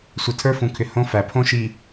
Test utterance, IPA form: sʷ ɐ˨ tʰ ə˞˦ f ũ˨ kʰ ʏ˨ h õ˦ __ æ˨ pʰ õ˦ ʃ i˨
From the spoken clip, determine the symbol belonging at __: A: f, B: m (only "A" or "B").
A